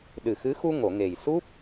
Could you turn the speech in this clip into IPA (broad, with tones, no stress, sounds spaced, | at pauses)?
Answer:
ɗ ɨ˨˩ x ɨ˧˥ x u˧ ŋ o˨˩˨ ŋ e˨˩ j s u˦˥ p̚